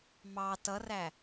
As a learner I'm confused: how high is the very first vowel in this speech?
low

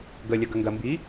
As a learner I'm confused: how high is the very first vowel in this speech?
mid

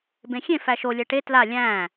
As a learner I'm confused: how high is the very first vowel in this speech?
mid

